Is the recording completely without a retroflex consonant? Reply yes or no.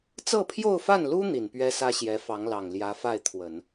yes